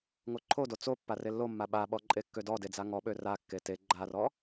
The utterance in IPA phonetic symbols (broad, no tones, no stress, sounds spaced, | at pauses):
ŋ o ǃʰ o d o t͡s o pː a r e lː o mː a ɓ a ɓ ɔ ǃʼ e kː ø d ɔ d e d͡z a ŋ ɔ ɓ ø r a kː e t e ɡ͡ǃ a r ɔ